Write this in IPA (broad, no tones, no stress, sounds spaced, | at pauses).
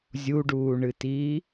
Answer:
zʲ u ɖ uː ɳ ɨ t iː